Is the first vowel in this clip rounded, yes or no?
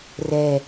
no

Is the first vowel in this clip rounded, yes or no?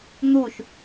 yes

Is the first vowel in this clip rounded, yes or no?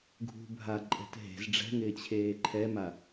yes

